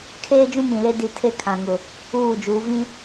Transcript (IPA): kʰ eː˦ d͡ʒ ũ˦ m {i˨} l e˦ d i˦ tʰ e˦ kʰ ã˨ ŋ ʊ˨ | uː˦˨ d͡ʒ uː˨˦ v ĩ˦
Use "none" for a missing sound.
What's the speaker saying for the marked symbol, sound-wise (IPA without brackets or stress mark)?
ĩ˨